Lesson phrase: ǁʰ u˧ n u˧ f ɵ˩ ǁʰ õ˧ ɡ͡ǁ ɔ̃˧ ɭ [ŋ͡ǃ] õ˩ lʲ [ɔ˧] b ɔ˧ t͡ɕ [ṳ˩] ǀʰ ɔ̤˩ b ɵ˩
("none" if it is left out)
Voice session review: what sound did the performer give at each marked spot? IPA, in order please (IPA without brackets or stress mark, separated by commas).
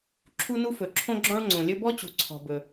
ŋ͡ǀ, ɵ˧, ṳ˩